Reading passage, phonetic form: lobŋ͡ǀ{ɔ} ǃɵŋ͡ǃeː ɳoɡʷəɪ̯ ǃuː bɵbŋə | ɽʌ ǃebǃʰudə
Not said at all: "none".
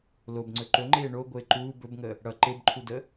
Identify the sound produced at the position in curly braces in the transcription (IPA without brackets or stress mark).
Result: ɵ